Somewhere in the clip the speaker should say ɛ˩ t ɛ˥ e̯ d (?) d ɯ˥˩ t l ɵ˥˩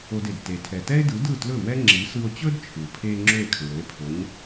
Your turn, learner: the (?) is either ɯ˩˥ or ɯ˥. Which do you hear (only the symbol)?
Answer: ɯ˩˥